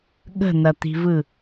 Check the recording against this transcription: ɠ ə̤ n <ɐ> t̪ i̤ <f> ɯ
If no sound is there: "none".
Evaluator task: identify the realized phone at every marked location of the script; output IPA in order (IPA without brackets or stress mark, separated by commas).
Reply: ɐ, v